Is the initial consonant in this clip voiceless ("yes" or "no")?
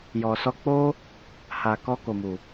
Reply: no